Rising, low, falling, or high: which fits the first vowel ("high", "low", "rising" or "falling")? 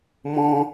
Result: high